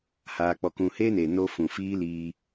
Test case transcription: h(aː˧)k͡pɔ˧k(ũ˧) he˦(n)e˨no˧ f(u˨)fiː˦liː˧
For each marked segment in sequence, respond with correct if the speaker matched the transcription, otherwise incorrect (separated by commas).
correct, correct, correct, incorrect